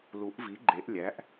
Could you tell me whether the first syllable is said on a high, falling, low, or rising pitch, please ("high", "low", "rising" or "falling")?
rising